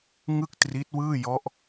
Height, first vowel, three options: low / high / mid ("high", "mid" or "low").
high